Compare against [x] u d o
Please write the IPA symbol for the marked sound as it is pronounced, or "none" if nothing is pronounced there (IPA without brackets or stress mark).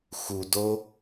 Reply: x